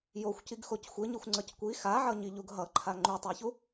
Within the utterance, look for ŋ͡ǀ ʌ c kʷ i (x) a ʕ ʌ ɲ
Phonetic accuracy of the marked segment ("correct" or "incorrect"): correct